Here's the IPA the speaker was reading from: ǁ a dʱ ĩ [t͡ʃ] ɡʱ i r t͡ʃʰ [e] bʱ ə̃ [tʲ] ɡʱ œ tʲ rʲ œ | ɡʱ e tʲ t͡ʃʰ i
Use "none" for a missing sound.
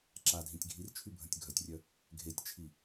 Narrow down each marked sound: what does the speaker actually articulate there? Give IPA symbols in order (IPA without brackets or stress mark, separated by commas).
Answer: tʲ, y, tʲ